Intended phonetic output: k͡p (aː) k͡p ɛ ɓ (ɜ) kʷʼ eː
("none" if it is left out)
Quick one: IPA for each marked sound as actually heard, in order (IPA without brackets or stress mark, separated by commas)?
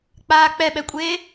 aː, ɛ